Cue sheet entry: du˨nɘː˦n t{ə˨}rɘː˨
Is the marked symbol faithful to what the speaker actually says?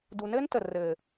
yes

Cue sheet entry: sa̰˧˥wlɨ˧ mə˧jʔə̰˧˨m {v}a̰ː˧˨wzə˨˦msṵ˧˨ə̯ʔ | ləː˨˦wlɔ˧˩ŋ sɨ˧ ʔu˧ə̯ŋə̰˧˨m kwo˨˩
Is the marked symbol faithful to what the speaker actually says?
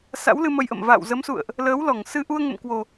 yes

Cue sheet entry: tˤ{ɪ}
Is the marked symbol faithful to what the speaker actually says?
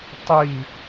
no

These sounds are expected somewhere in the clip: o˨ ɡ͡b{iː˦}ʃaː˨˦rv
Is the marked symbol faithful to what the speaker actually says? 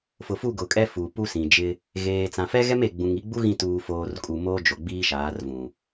yes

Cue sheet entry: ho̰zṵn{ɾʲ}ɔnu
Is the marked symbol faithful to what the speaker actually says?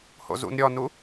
yes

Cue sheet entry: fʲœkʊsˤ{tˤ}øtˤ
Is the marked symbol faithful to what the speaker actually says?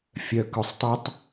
yes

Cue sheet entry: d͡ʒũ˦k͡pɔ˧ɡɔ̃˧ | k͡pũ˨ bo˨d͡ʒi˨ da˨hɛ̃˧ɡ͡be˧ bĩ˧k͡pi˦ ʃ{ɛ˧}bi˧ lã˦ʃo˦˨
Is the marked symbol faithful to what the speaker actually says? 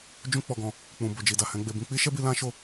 no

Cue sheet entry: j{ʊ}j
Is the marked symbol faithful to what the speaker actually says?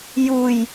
no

